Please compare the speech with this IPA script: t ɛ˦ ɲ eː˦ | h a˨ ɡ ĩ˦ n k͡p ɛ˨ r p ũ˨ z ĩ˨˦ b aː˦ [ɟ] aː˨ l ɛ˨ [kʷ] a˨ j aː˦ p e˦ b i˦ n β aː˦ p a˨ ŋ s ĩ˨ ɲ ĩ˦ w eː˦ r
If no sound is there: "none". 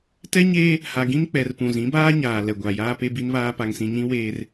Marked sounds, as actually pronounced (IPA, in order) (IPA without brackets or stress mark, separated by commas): ɲ, ɡʷ